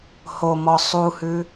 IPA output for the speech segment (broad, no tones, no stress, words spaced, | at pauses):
homɔ sˤuhʉ